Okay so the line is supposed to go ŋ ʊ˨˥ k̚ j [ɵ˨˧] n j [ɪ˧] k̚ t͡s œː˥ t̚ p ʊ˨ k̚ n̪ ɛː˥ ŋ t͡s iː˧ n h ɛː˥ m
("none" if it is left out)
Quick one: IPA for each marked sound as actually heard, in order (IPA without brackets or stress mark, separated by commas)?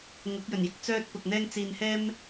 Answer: ɵ˨˩, ɪ˧